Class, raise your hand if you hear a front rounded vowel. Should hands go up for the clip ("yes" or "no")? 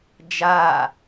no